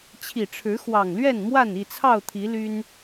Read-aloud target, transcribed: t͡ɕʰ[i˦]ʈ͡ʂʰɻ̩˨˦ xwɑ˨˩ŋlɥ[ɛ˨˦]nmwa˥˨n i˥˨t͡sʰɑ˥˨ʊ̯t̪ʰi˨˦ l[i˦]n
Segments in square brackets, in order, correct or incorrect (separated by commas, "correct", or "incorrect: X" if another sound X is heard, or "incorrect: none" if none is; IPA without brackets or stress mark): incorrect: i˨˩, incorrect: ɛ˥˨, incorrect: y˦